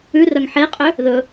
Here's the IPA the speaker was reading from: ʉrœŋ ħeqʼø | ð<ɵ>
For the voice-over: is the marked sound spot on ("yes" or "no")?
yes